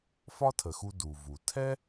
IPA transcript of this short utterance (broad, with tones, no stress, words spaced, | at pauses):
fɒ˥tʰə˩xu˧ du˩vu˩ tʰɛ˥